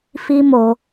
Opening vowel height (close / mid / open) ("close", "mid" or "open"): close